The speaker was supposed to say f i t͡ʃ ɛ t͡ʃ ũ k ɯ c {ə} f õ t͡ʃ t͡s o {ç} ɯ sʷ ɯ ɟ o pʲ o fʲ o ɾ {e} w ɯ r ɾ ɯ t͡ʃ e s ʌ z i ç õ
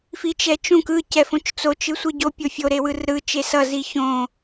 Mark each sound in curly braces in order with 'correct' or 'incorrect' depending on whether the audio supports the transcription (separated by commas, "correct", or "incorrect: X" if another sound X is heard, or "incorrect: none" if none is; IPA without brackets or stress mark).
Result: incorrect: ɛ, incorrect: t͡ʃ, correct